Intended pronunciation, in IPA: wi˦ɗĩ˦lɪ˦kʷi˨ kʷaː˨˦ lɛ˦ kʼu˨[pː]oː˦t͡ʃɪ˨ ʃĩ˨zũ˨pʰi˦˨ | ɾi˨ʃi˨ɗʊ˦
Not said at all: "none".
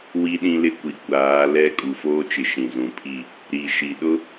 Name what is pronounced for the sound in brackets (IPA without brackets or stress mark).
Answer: f